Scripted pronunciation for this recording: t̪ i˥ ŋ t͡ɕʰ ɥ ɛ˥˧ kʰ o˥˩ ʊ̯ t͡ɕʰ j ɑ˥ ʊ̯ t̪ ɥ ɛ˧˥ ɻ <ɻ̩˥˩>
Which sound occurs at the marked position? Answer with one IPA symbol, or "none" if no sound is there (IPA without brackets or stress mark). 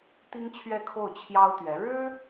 ɻ̩˥